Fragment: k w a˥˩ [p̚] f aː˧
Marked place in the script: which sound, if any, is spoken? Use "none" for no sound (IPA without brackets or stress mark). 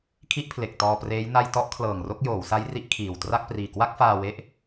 k̚